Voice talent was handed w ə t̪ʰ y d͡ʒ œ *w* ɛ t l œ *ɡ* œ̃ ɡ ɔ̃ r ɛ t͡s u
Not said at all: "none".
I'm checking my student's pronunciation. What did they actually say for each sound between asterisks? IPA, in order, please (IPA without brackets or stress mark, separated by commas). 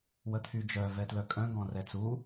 v, kʼ